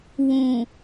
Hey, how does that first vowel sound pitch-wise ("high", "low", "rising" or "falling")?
low